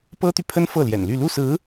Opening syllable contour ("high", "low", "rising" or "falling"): high